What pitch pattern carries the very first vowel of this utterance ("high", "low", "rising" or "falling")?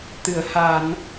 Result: low